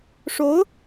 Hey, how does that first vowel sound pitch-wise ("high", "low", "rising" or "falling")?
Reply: rising